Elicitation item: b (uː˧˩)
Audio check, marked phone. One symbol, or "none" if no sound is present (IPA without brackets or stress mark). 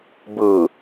ɯː˧˩